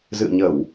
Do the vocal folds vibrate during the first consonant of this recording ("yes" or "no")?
yes